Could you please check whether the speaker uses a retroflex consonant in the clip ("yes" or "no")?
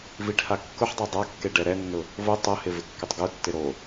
yes